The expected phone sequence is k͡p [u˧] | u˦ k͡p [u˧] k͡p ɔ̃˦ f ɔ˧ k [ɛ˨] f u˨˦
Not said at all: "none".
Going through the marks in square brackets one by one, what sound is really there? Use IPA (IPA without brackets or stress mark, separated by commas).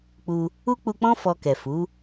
u˧, u˧, ɛ˨